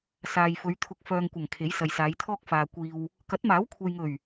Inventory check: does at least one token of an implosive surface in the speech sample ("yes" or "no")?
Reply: no